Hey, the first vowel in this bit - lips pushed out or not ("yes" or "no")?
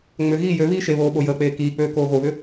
yes